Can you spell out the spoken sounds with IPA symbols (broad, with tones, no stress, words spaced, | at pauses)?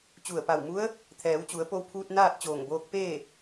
t͡ɕu˧˩ə̯pa˧˩wmu˧˥ə̯ | t̪ʰɛː˩˧wt͡ɕu˩˧ə̯po˧wpʰuː˧t̚ naː˥˨t̚t͡ɕoː˧˩ŋboː˧k̚peː˥˨